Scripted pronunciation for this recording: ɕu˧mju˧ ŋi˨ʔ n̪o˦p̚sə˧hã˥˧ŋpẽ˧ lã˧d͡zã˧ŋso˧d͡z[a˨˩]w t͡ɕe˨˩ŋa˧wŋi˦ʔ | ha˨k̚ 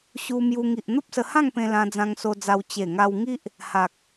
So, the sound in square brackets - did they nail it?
no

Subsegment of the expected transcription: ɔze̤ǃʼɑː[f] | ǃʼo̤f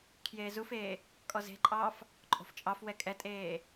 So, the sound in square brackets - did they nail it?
yes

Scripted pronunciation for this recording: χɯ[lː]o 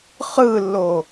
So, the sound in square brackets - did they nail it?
yes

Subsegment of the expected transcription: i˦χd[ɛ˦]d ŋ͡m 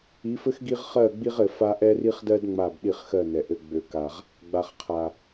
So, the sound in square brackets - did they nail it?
no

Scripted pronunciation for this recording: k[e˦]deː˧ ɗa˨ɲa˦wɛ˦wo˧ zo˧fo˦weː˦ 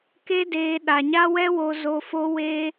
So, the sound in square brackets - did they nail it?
yes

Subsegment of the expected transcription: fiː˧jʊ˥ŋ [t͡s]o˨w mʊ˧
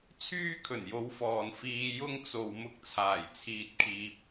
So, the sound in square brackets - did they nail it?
yes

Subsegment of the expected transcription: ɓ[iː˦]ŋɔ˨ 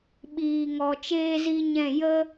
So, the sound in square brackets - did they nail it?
no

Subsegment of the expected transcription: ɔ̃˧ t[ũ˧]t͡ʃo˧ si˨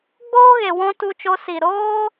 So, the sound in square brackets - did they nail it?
no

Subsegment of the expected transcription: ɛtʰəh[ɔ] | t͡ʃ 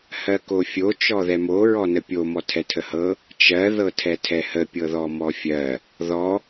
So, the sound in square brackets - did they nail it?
no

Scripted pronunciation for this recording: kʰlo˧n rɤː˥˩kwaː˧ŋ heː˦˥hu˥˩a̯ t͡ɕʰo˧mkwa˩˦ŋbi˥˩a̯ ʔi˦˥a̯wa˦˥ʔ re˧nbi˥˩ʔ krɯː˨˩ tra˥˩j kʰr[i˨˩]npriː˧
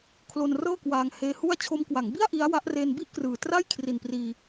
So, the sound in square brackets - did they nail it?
yes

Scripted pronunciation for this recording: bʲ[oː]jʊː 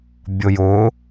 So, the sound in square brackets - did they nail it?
no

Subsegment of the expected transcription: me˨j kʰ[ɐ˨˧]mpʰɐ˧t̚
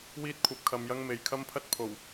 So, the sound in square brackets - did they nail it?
no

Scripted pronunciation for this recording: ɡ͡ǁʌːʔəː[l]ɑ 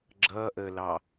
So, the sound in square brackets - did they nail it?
yes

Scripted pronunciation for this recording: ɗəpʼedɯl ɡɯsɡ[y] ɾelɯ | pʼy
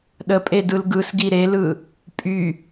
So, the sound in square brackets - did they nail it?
no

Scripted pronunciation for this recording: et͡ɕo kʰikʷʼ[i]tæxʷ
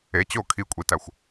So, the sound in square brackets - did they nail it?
yes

